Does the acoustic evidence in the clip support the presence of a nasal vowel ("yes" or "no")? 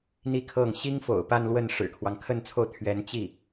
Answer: no